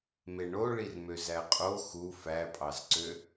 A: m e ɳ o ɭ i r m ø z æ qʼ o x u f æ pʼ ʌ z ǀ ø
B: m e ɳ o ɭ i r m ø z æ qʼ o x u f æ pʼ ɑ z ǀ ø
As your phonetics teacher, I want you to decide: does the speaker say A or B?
B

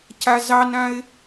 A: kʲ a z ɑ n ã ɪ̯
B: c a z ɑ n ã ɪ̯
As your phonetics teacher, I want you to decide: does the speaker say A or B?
B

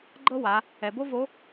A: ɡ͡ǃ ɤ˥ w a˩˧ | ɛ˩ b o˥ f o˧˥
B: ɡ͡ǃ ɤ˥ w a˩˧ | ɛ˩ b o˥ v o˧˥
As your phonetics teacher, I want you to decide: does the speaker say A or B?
B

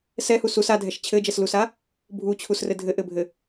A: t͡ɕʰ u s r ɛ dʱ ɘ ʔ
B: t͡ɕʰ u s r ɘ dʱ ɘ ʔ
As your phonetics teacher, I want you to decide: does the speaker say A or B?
B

